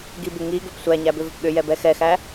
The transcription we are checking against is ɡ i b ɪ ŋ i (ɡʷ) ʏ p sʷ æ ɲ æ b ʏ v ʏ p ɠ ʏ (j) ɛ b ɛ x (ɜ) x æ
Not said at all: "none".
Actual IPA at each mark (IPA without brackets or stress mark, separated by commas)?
ɡ, j, ɛ